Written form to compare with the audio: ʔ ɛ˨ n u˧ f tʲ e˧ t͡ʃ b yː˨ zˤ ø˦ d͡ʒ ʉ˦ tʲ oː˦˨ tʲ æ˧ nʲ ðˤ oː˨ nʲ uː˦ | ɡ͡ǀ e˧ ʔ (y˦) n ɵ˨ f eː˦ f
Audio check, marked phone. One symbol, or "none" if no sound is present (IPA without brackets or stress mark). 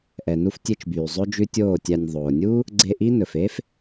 i˦